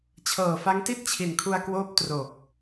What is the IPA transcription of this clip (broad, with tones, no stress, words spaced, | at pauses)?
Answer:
t͡ɕʰɤː˨˩fa˦˥ŋti˥˩t̚ t͡ɕʰi˨˩nkʰu˧a̯kwoː˦˥p̚ tro˨˩k̚